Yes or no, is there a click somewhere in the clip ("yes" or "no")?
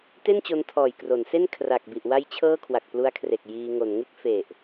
no